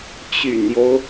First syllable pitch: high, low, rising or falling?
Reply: low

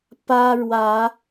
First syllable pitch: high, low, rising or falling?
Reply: high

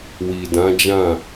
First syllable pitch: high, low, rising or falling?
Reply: low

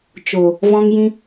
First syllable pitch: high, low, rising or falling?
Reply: low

